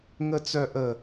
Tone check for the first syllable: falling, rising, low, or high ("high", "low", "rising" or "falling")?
high